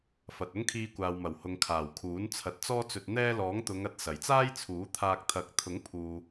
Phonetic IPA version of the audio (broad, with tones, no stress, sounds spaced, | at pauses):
f ɐ˨ t̚ ʊ˥ ŋ kʰ iː˧ kʷ aː˨ w m ɐ˨˩ w h ʊ˨ ŋ kʰ aː˨˩ w kʰ uː˨˥ n t͡sʰ ɐ˨˥ t̚ t͡s ɔː˧ t͡s ɵ˨ t̚ n̪ ɛː˧ l ɔː˨˥ ŋ t̪ ʊ˨˧ ŋ ɐ˧ t̚ s ɐ˨˩ j t͡s aː˥ j t͡sʰ uː˨˥ t̪ʰ aː˧ k̚ t̪ʰ ɐ˨˥ k̚ t̪ʰ ʊ˨˥ ŋ pʰ uː˨